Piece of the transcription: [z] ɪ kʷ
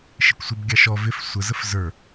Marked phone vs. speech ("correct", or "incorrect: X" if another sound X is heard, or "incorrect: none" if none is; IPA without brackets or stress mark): incorrect: ʃ